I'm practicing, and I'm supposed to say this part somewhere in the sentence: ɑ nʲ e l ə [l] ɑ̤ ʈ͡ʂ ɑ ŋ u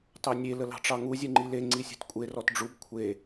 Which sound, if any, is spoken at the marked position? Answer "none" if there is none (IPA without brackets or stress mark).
l